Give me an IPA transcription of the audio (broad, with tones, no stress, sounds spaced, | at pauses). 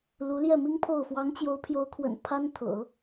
l u˧˥ l j ɛ˥˩ m i˥ ŋ pʰ o˥˩ ʊ̯ f w ɑ˧˥ ŋ t͡ɕ j o˧˥ ʊ̯ pʰ j o˧˥ ʊ̯ kʰ w ə̰˨˩ n pʰ a˥ n t̪ʰ ɤ̰˨˩˦